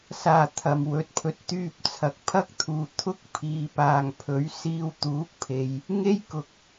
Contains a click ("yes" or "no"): no